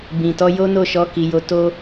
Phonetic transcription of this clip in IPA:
bĩ˨tɔ˧ jo˦no˦˨ʃɔ˧ ki˧jo˦ to˦

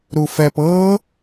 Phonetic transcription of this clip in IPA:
ɾufɛp ɤ

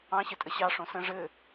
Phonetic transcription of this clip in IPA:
ɑ̃ɕɘtʼə ɕɑ ʂõsə̃ ʐɘ

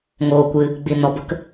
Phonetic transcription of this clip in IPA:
ŋoː˨kʷɨ˨ | ɡ͡bi˨ nɔ˨bə˧k

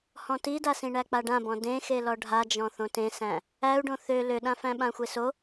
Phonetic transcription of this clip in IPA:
hɔ̃tidasĩ ɳæk͡paɖãbɔ̃ dẽxelɔ ɖʱad͡ʒɔ̃ θõtẽsæ̃ | æu̯ɖõ θø løɗãfæ̃ɓã xʷeso

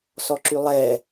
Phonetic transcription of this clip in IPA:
sɔǁylˠɛ

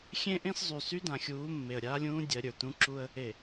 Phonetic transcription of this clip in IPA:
xʲẽ˦ʔẽ˦szˤy˨ sy˦dã˨xʲuː˨˦ mːe˨ə̯ɾʲaː˦lʲũː˦ dʲɜ˨˦ɾʲə˞˨tũ˦ ǁu˦ə̯ | e˨

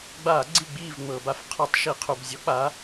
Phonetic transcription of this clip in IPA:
ɡ͡ba˧˩˧ ɡ͡ǀi˥˨ɡ͡biː˥˨v ŋ͡mɤː˩ba˨˥f qʰɔ˧˩˧tˤ ʃi˧˩˧qʰu˩b zʲɔ˨˥k͡paː˨˥

